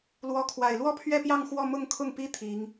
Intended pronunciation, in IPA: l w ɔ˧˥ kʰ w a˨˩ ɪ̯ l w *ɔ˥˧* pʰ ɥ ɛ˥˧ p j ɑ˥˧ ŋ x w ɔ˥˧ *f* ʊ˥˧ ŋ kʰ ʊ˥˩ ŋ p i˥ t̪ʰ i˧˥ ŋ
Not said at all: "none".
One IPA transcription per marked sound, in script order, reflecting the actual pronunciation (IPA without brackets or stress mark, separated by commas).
ɔ˥˧, m